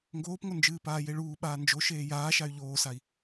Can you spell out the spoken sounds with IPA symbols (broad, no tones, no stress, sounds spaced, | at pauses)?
ŋ ɡ oː p ŋ o n d͡ʒ ɨː p aː j e ɭ uː ɓ aː n d͡ʒ o ʃ eː j aː ʃ a y̯ ʎ oː s a i̯